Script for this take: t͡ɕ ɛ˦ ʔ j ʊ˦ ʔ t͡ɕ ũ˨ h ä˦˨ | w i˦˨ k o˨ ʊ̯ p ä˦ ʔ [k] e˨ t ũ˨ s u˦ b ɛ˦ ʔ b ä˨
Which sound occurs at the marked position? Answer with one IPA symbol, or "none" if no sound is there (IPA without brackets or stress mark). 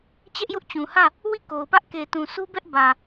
k